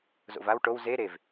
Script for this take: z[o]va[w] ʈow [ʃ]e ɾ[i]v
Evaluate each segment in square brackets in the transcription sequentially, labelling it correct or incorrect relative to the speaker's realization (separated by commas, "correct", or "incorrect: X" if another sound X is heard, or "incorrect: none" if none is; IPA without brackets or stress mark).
incorrect: o̰, correct, incorrect: z, incorrect: e